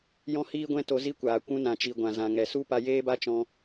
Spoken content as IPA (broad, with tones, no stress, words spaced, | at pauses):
jɔ̃˦hiː˦ɡʷɛ̃˦to˧ zi˦kʷaː˨ kʷũ˧nã˨t͡ʃi˨ ɡʷã˨zã˨ŋɛ˨su˦ pa˧jeː˦ba˦t͡ʃɔ̃˧